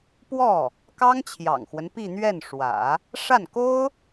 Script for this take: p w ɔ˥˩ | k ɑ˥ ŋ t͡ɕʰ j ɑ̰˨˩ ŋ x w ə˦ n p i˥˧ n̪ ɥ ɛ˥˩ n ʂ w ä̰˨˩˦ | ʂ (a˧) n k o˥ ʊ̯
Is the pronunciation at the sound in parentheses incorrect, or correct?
incorrect